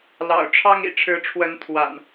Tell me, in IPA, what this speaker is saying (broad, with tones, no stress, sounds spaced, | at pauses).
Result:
l ɑ̰˨˩ ʊ̯ ʈ͡ʂʰ ɑ˦ ŋ ḭ˨˩ ʈ͡ʂʰ ɻ̩˨˦ ʈ͡ʂʰ w ə˨˦ n t̪ʰ w a̰˨˩ n